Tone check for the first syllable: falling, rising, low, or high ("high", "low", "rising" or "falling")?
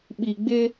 low